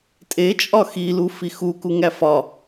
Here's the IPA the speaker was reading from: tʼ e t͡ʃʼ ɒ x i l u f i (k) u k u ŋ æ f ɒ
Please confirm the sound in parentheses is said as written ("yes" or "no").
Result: no